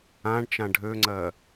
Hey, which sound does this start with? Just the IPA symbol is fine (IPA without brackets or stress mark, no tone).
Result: ã